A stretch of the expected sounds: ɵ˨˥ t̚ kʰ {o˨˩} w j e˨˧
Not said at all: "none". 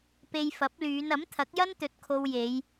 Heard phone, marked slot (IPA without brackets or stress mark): o˧